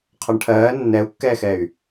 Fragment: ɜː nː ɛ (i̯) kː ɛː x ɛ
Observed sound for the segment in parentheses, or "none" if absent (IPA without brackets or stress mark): u̯